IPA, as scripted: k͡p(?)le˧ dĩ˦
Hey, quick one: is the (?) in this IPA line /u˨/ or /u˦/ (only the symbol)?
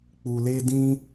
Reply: u˨